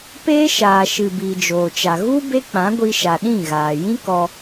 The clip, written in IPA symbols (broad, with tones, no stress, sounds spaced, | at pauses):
p eː˦ ʃ aː˨ ʃ ɨ˨ b iː˨ d͡ʒ oː˨ t͡ʃ a˨ ɣ u˦ b e˦ k͡p ã˨˦ ɡʷ i˧ ʃ a˨ ɗ ĩ˦˨ ɣ aː˨ j ĩ˦ k ɔ˧